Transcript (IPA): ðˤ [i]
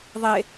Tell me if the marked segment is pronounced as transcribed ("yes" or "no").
no